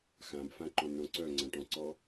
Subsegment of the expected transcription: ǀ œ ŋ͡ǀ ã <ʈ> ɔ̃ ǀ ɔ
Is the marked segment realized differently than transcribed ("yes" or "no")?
no